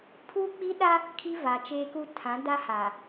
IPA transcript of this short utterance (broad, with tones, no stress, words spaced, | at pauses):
pʰuː˦k͡pi˦ɗa˦ | kʰi˦va˨t͡ʃeː˦ku˦ tʰã˨˦da˦ha˨